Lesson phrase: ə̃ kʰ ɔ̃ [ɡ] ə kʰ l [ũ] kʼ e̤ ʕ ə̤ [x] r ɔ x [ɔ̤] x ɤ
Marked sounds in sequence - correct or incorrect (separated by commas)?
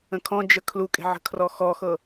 incorrect, incorrect, incorrect, incorrect